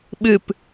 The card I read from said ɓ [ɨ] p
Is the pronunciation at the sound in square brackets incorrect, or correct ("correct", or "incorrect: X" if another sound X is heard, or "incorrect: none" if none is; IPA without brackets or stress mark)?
correct